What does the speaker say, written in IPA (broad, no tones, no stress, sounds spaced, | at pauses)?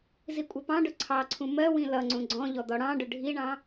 z i kʷʼ ʌ p ɑ̃ ɖ ʊ ǀʰ ɑ ǀʰ ũ m ɜ w ĩ l ʌ ŋ͡ǀ ũ ɡ͡ǀ ɔ̃ ʎ ɔ d̪ ɔ ɽ ɑ̃ ɖ ʊ ɖʱ i ɳ ɑ̃